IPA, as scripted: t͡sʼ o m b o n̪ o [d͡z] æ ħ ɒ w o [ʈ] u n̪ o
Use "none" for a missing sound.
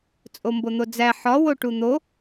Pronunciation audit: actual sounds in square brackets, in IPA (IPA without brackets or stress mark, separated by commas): d͡z, ʈ